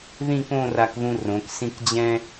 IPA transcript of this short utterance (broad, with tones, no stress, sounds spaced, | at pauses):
ð ĩ˥˧ k õ˥˧ r a˧ k ð ũ˧ r õ˩˧ k s ĩ˥˧ k d͡ʑ ɛ̃˥